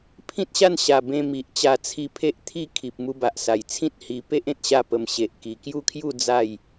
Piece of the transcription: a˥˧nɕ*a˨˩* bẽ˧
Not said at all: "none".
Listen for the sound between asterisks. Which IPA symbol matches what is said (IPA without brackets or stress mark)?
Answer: a˨˩